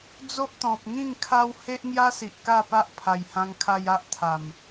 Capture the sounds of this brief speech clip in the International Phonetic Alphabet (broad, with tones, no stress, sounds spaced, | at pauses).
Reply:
d͡z o˦ ʔ t̪ ɔ̃˨ p̚ ŋ ĩ˥˧ ŋ kʰ a˦ w h e˦ ʔ ŋ j a˦ s i˨ ʔ k a˥˧ p a˦ ʔ pʰ a˨˩ j h ã˧ ŋ kʰ a˧ j a˦ ʔ t̪ʰ a˨˩ m